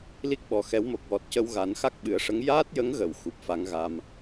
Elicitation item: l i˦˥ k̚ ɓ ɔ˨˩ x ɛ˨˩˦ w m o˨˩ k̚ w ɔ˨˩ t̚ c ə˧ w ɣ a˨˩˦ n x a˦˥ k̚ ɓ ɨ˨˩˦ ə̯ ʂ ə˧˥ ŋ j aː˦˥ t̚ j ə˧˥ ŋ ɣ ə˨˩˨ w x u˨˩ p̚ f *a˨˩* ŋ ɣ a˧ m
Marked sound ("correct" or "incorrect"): incorrect